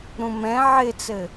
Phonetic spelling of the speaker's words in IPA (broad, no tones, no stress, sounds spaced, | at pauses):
ɾ ũ m ɛ̃ ʕ ɪ t͡s ɘ